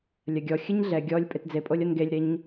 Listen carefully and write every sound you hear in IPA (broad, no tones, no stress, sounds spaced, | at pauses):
lʲ ɐ ɡʲ ɔ xʲ ɨ ɲ ɮ ɛ ɡʲ ɔ lʲ pʼ e t d͡z e pʼ o lʲ ɔ n ɡ e lʲ ɾ e ɲ